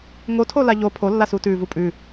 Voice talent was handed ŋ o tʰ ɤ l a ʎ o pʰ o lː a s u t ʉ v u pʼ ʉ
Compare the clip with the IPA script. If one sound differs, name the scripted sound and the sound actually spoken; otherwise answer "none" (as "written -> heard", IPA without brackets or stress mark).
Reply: ɤ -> o